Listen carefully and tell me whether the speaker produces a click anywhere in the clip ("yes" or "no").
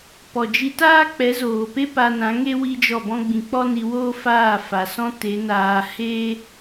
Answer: no